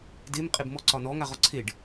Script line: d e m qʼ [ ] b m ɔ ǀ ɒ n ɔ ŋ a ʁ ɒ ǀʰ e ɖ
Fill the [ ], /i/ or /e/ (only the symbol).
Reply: e